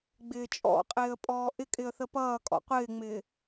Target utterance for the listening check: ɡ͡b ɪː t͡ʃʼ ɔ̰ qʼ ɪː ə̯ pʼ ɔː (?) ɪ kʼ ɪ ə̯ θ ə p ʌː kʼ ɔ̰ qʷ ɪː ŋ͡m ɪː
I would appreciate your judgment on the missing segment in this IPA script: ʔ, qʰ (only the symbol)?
ʔ